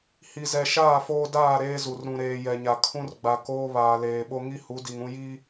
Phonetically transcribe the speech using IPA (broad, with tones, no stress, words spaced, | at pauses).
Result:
hi˨zɛ˨ʃaː˦˨ foː˦ daː˦˨ ɾeː˦zu˨r ɾũ˨ɾeː˨ jɛ˨ɲa˨ kʰũ˦rɡ͡ba˨koː˦ βaː˨leː˨ɓo˦ ŋi˦ hu˨˦di˨ŋũ˦ ji˦